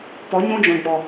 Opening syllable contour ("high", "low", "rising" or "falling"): rising